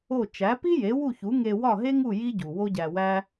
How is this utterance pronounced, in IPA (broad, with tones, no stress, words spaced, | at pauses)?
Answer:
o˥˩ t͡ʃæ˩˥pi˥ je˩˥wu˥˩çu˩˥ŋe˧ wɒ˥˩ɦe˥ŋu˥˩ ji˥ɟu˩ wo˥ɟæ˧wæ˥